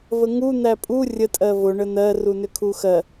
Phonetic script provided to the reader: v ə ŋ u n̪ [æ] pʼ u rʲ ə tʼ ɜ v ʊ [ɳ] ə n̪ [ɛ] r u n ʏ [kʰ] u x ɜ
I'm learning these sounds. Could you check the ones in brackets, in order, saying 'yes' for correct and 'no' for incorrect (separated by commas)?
yes, yes, no, yes